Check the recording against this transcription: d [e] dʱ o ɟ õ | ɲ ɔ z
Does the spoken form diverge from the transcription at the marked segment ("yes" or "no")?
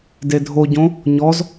no